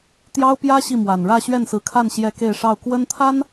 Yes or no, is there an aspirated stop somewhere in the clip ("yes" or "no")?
yes